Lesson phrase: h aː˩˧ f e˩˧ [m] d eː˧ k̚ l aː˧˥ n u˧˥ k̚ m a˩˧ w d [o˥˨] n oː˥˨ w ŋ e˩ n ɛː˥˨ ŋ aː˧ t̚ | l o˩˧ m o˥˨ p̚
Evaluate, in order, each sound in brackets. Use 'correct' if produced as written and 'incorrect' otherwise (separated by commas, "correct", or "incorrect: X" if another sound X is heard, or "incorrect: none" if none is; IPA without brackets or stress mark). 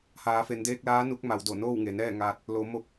incorrect: n, incorrect: o˧˩